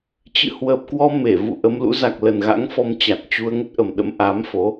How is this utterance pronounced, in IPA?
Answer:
t͡ɕ ɨ̰˧˨ h w əː˨˩ p̚ k w ɔ˧ m e˧˩ v ṵ˧˨ ʔ ə˧ m l ṵ˧˥ z a˨˩ k̚ l ə˨˩ n ɣ a̰˧˥ ŋ f ɔ˧ m t͡ɕ a˨˩ t̚ t͡ɕ u˧ ə̯ ŋ ə˦˥ t̚ ʔ ə˨˩ m ɗ ə̰˧˥ m ʔ aː˨˦ m f o˨˦

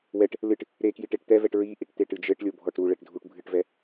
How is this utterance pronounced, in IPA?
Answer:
w ɛ ʈ | l ɨ ʈ | ɾ e k j i ʈ e ʈ t̪ ɛ v ɛ ʈ ɹ i ʔ i ʈ t̪ e ʈ ɨ d͡ʒ ɘ ʈ lʲ o bʱ ɔ ʈ ɾ u ɭ ɛ ʈ dʱ u ʈ bʱ ɨ ʈ v ɛ

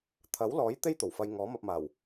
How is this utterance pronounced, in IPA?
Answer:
t̪ʰ ɐ˨˥ w l ɔː˨˥ j t̪ e˥ j t̪ o˨˩ w f ɐ˧ j ŋ ɔː˨˥ m ɐ˧ p̚ m aː˨˩ w

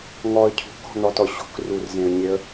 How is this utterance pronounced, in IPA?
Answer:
ŋ ɔ ə̯ cʰ ṳ k ɔ̤ n̪ ɔ t ɔ ɕ ṳ k r u r z ẽ ə̯ ɲ e ə̯

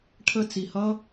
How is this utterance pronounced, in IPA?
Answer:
ʈʰ ə˧ t͡s i˨ h ʌ˦

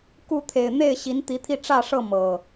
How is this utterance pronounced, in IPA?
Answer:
k u˥˨ t̪ʰ e˨˩ ɪ̯ n̪ e˥˨ ɪ̯ ɕ i˨˦ n t̪ i˨˦ t̪ʰ i˧ ʈ͡ʂ ä˥˨ ʂ ɤ˥˨ m ɤ˨˩

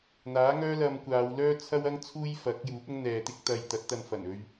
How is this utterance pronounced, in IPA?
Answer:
n̪ aː˨˥ ŋ œː˥ l ɐ˧ m kʷ aː˨˧ w l œː˥ t͡sʰ ɐ˥ w ɐ˥ ŋ t͡sʰ uː˥ j f ɐ˨˥ k̚ j uː˨˥ p̚ ʊ˥ ŋ n̪ ɛː˨ t̪ ɪ˥ k̚ t̪ ɐ˧ j t̪ ɐ˨˥ t̚ t̪ ɐ˧ n f ɐ˨˩ n ɵ˧ ɥ

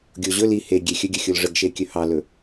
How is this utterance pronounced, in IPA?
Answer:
ɡʲ o ʑ ɵ l i h e ɡʲ e xʲ ɵ ɡʲ ɵ xʲ o l ʐ ə ɡ ʃ e kʲ ɵ h ɑ l ɵ

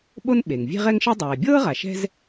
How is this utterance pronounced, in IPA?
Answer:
ɓ o˥ n ɓ e˩ ŋ vʲ e̤˥ ʁ ɛ˥ ŋ ʃ ɤ˥ dˤ ɛː˩ bʲ ɤː˥ ʁ a˩ ʃ ɛ̤˥ z

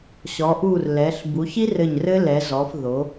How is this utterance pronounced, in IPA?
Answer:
ɕ ɔ˩˧ ʔ u˧˩ r l ɛ˩˧ ɬ b u˩˧ ç i˦˥ r ɘ˧˩ ɲ r ɘ˦˥ l ɛ˩˧ z ɔ˩˧ f ð o˩˧

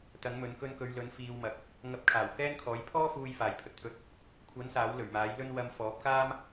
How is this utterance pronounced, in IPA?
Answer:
t̪ ɐ˨˥ ŋ m ɵ˨˥ n k ɵ˧ n k ɵ˨˧ ɥ l ɵ˨˥ n f iː˧ w m ɐ˨ k̚ | ŋ ɐ˧ p̚ kʰ aː˨˩ w k ɛː˥ n kʰ ɔː˨˥ j pʰ ɔː˥ f uː˧ j f aː˨ j pʰ ɵ˨ t̚ t̪ʰ ɵ˧ t̚ | kʷʰ ɐ˨˥ n s aː˨˥ w l ɵ˨˩ ɥ m aː˨˥ j l ɵ˥ n w ɐ˧ m f ɔː˨˥ p̚ k aː˥ m

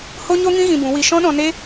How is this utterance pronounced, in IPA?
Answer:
h o˦ ɲ o˦ ŋ ĩ˦ ɣ ĩ˧ b ũ˨˦ w i˧ ʃ ɔ̃˦ ɗ ɔ̃˧ n e˦

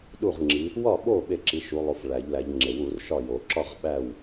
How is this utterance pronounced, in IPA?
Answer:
ɗ u˥˨ ʁ ŋ͡ǁ i˨˦ | w ɒ˥˨ ɓ o˥˨ ɓ e˥˨ ǁ i˨˦ ʃ u˨˦ lˠ o˨˦ f ɭ æ˨˩˦ ʎ l æ˨˦ ʎ ŋ͡ǁ e˨˩˦ w u˨˩˦ r ʃ ɒ˥˨ j o˨˩˦ ǁ ɒ˥˨ ʁ ɓ æ˥˨ w

